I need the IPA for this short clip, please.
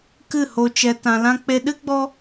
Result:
k ɨ˦˨ h o˧ t͡ʃ ɛ˧ t ã˧ l ã˦ k͡p e˧ ɗ ɨ˦ ɡ͡b ɔ˦

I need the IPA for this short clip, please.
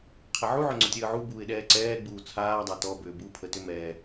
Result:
qʰ ɛ ʕ u ʕ ʏ ŋ͡ǀ ʊ tʲ əː ʕ u b uː ɪ̯ ɗ ɛː ǀ ɛː ɡ͡b uː t͡sʰ aː dˤ a t ɔ b ʏː b u pʰ ə t ʏ m ɛː

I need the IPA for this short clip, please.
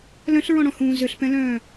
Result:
l œ̃ ɬ ɹ ɔ̃ ɽ ɔ̃ h ũː z ʏ ɬ p ɛ̃ l œ̃ː

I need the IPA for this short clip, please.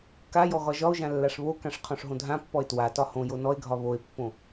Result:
k a j ɔ ɣ ɒ ʒ ɒ o̯ ʒ ã lː a ʂ β o k ã ʂ qʰ ɔ̃ ʂ ɦ õ dʱ ã pː ɔ e̯ t w a t ɒ h õ j o n ɔ e̯ ɡʱ ɒ β o e̯ pː õ

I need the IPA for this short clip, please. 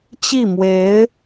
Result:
t͡ɕ i˥˩ m w e˧˥ ɪ̯

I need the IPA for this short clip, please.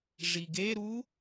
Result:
ʐ i ɡ e ɾ u

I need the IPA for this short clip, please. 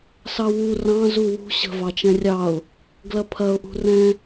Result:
s ɑ w u r ɑ̃ z u w ṳ ɕ ə̤ v ɑ t͡ʃ ɛ̃ rʲ ɑ ʊ̯ | ɡ l ɐ pʰ ɐ ʊ̯ ʔ ṳ r ɛ̃

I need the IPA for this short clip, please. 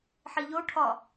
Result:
ħ i ʎ o ʈʰ ɒ

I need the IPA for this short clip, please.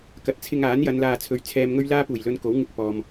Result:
k ɐ˨˥ t̚ t͡sʰ ɪ˧ ŋ aː˨˥ n j ɐ˨˧ n l aː˧ t͡sʰ ɵ˧ ɥ t͡sʰ ɛː˧ m ŋ ɵ˥ ɥ l aː˥ p uː˨˩ j l ɵ˧ n k o˨˥ w ŋ ɪ˧ k̚ p ɔː˨ m

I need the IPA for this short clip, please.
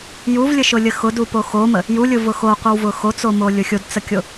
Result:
j u v lʲ ə ʃ ʊ lʲ ə x ʊ d u p o x o m ə | j u lʲ ʊ v ʊ x o qʷ ə w v ʊ x o t͡s o m o lʲ ʊ xʲ o d t͡s ə kʲ o

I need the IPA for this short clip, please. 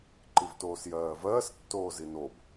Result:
ǃ i v t oː s j ɜː v ɜː s tː oː z i n o b

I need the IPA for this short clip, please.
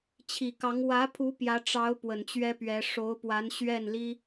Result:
t͡ɕʰ i˨˩ k ɑ˧˥ ŋ w ä˧˥ pʰ u˧˥ p j ä˧˥ ʈ͡ʂ ɑ˧˥ ʊ̯ p w ə˨˩ n t͡ɕ ɥ ɛ˥ p ɥ ɛ˧˥ ʂ o˧˥ ʊ̯ p w a˧˥ n ɕ ɥ ɛ˥˩ n l i˥

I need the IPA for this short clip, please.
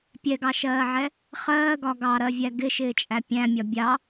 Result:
pʲ ɛ ɡ ɑ ʃ ɜː ʕ ɛ | χ ɜː ɡ ɒ ɡ ɑ ɾ ɜ vʲ æ ɡ ɪ ʃ ɪː t͡ʃʼ æ pʲ æ̃ mʲ ɒ bʲ ɑ

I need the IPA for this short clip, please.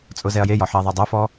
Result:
t͡sʼ ʊ z ɛ ɐ̯ j e j ɒ ħ ɛ ðˤ ɛ dˤ œ f ɔ

